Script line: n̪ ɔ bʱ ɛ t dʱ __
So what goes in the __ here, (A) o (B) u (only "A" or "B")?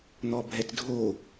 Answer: A